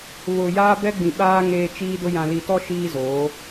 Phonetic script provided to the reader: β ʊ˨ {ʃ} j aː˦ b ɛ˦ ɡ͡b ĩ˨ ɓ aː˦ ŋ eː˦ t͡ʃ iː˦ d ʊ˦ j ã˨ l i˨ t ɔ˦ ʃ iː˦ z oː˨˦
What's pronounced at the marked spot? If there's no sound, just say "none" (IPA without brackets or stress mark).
none